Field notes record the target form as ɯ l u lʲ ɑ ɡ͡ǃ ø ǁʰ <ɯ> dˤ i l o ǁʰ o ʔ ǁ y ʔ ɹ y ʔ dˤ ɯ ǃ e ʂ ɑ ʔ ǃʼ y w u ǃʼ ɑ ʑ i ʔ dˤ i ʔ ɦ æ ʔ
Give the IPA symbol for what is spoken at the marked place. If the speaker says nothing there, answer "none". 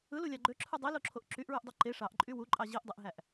ɯ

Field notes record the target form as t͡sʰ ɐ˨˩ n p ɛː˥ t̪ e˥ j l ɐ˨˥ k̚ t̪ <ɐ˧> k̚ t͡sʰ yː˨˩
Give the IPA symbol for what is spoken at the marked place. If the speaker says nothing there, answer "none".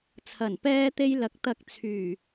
ɐ˧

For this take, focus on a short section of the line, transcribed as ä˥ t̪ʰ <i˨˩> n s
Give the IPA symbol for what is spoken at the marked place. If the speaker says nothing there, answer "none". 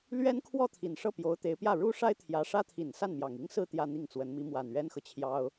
i˨˩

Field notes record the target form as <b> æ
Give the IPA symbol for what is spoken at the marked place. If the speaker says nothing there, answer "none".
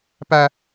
p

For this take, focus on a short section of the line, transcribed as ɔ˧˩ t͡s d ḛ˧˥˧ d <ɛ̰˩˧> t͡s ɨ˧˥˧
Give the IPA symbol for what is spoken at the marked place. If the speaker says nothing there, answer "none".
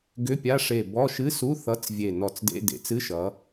ḛ˩˧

